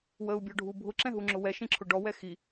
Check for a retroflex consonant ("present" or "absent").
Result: present